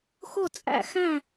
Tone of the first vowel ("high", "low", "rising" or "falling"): falling